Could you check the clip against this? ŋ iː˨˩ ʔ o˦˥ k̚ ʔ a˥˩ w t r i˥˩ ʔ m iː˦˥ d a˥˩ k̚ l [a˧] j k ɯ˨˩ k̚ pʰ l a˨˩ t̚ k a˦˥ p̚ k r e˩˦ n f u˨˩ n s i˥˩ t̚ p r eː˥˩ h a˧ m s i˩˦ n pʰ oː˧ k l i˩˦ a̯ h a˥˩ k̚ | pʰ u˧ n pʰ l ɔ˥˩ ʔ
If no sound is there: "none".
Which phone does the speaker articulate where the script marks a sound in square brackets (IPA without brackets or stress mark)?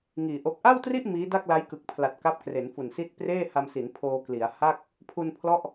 a˦˥